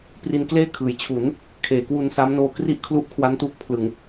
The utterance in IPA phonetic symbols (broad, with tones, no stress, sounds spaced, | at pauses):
p r i˧ n k l eː˥˩ kʰ ɯː˩˦ j t͡ɕʰ u˩˦ n | kʰ eː˩˦ k w u˧ n s aː˦˥ m n oː˧ k r i˥˩ ʔ kʰ l u˦˥ ʔ kʰ w a˦˥ n t uː˦˥ k̚ pʰ l ɯ˨˩ ŋ